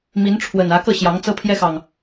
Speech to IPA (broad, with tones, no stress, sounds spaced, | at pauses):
m i˨˦ n ʈ͡ʂʰ w ə˨˩ n ä˨˦ k ɤ˥˨ ɕ j ɑ˨˦ ŋ t͡s ɤ˦ pʰ j ɛ˦ x ɑ˨ ŋ